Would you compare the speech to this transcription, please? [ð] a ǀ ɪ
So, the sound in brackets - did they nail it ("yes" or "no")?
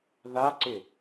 yes